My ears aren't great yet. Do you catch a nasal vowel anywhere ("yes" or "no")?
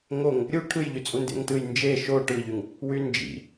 no